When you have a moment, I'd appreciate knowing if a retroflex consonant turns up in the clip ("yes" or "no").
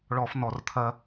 yes